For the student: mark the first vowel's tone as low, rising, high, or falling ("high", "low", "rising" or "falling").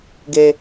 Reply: high